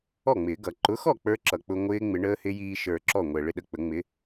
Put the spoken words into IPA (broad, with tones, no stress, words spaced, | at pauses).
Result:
ɔ˥˩ŋ͡mɪː˨˩˦ ɡʌ˨˩˦ ǃʊ˨˥xɔ˥˩ k͡pə˞˦˥ǁʌ˨˩ k͡pʊ˧ŋʷɪː˦˥ŋ͡mɪ˨˩˦ ɳəː˦˥hɪ˦˥ jiː˧ʃə˞˨˩ ǁɔ˥˩ŋʷɛ˨˩ ɭɪ˥˩ɗə˥˩k͡pə˨˩˦ŋ͡mɪ˨˥